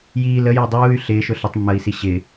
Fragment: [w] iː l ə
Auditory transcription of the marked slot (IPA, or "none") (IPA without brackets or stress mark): j